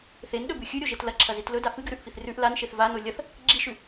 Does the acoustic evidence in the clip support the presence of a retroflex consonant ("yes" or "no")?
no